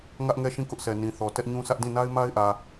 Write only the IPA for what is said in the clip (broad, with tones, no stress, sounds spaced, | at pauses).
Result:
ŋ ä˦ ʔ ŋ ɛ˦˨ ʃ ĩ˦˨ k ʊ˦ ʔ sʰ ɛ˨ n ĩ˨ θ ɔ˨ t ɛ˦ ʔ ɲ ũ˦ sʰ ä˦ ʔ d ĩ˦˨ n a˦ ɪ̯ m a˦ ɪ̯ ʔ ä˨